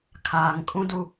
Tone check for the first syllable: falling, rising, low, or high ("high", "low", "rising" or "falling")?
low